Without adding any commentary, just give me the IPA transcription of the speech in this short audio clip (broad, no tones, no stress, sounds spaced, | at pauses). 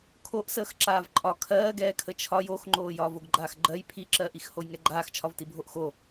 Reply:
kʰ o ʔ s əː x ǁ aː v ǃʼ ɒ kʰ ɜː ɡ ɛː kʰ ə t͡ʃʰ ɒ j o x ŋ͡ǃ oː j ɒː v o ɡ ɡ͡ǃ aː x ɡ͡ǃ ɜ j pʰ i ǁ ɜː ʔ i x h o j ŋ ɛ ɡ͡ǃ aː x t͡ʃʰ ɒ v t i bʱ o ʔ x o